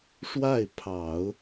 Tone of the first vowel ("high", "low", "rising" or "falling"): falling